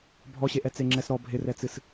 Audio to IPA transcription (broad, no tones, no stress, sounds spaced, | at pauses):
bʱ ɔ ɕ e ʔ ɛ t͡s e ŋ͡ǁ ɛ s ɾ ɔ bʱ ɪ r ɛ t͡s ɨ s